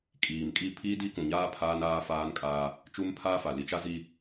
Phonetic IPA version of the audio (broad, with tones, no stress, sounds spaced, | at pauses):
kʼ iː˨ m kʼ i˦˨ pʰ iː˦ d i˦ k ũ˨ ɲ aː˦ pʰ aː˦ n aː˦ f aː˦ n kʼ aː˦ | t͡ʃ u˦ m pʰ aː˦ f a˨ l i˨ t͡ʃ a˦ z i˦